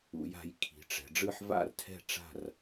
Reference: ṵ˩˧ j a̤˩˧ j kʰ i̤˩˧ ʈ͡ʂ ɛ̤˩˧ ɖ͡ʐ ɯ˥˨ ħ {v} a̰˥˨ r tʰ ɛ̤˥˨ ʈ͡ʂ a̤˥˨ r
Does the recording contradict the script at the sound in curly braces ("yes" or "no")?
no